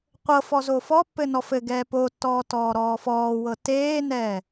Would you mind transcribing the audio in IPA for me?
qʷɤfɔ zofɔpːɘ nɔfɘɡɛː potːɔː tɔːɾɔːfɔːwɤ teːnɛː

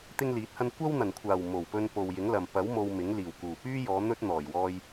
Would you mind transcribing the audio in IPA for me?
t̪ɪ˥ŋliː˨˥t̚hɐ˥n kʷɐ˥wn̪ɐ˨˩nkʷʰaː˨˩w mo˨˩wpɵ˧n po˨wjɪ˨˥ŋlɐ˨m pɐ˨˥w mo˧wmɪ˨˥ŋ liː˨˩wkuː˨˩pyː˥jɔː˨˧ n̪ɵ˥t̚n̪ɔː˨˩jwɔː˧j

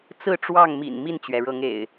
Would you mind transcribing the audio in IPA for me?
t͡sɹ̩˥˨ʈ͡ʂwɑ˥˨ŋmḭ˨˩n mi˥˨nt͡ɕɥɛ˩ɻɤ˨˦ŋḛ˨˩ɪ̯

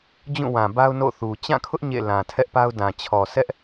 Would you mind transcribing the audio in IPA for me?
d͡ʑũ˦˨wã˨ba˦ʊ̯ no̰˦˨θu˨ t͡ɕã˦˨kʰʊ˦ʔ ɲḛ˦˨lã˨ tʰɛ˦ʔpa˦ʊ̯dã˨ t͡ɕʰɔ˨sʰɛ˦ʔ

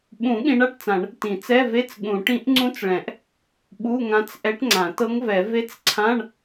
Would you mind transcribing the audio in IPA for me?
ɓũ˨˩˦ ɠĩ˧˥ɳa˧˥˧ʈt͡sã˨˩˦ɳ | tĩ˨˩˦t͡sɛ˧˥˧ve˧˥˧t͡s ɠũ˨˩˦ ʈĩ˧˥ʔŋ͡ǀũ˧˥t͡sɭɛ̃˨˩˦ʔ | ɓu˧˥˧ŋã˧˥t͡sʔɛ˧˥ʈŋ͡ǀã˨˩˦ tɤ˧˥ŋvɛ˨˩˦ ve˧˥t͡sǀʰã˧˥˧ɳ

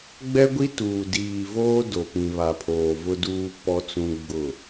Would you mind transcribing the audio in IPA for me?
ɡ͡bɛ˦ɡʷi˦tuː˨ diː˨voː˦ do˨pĩ˨βa˨pʰoː˨ vʊ˦duː˦ pɔ˦t͡sũ˦ɡ͡bʊ˦˨

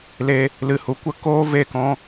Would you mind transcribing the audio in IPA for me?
le˧ | lɨ˨hu˨kʷə˦ koː˦ve˦˨kɔ̃˧

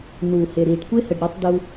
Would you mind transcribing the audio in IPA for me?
nuː˨he˨ɾiː˨ɖ kʷe˦hə˨ɖ ɾi˦tˤdu˦

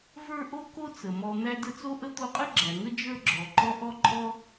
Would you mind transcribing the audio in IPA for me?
və˞˦ ʔo˦ko˦t͡sə˩mɔ˨ n̪æ˦də˦t͡so˥ʔə˥ t̪o˦qʼə˥ɡ͡ǁæ˨ŋə˥ d͡ʒə˞˦ɡ͡ǁɔ˨ǃɔ˦ ʔɔ˥ǃʼɔ˥

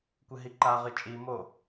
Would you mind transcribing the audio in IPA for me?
kʷɨɦiǃaʁɨ t͡ʃʼimo

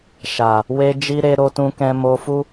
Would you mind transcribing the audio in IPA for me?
ʃa˨ | we˧ d͡ʒi˧ɾe˧ ɾo˧tũ˧kɛ̃˧ mo˧fu˦

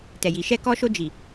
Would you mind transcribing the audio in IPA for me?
tɛ˨ji˨ ʃɛ˧kɔ˧ʃo˧ d͡ʒi˨

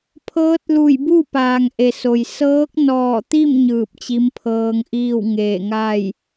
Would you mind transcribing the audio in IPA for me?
pʰɤː˧˥t̚lu˧˩jbu˥˨ paː˩ŋ ʔe˩so˩j sɤː˧˥k̚nɔː˧˩t̪i˥˨m ɲɯː˧˩p̚t͡ɕi˧˥mpʰɤː˧ŋʔiː˥˨w ŋeː˧˩ŋaː˥˨j

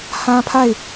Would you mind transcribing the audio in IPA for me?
hã˦pʰa˦˨ɪ̯

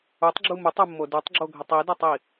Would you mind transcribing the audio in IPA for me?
utˤɡ͡ǁu mutˤumːo dʉtˤɡ͡ǁoɡʱətˤ idətˤi

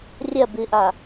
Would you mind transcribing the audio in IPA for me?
rʲɐ bɨʔa

